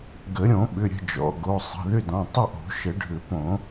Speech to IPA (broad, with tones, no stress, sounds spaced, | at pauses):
ɡ ə˨˩˦ ɾʲ õ˨˩˦ ɓ ʏ˩˧˩ ɾʲ ə̤˥˨ d͡ʒ ɔ̰˩˧˩ ɡ o˩˧˩ sˤ ə̤˩˧˩ ð ʏ˥˨ d ɔ̃˩˧˩ tˤ ə˥˨ ʔ o̤˨˩˦ ʃ ə˨˩˦ ɖʱ ʏ˨˩˦ p õ˨˩˦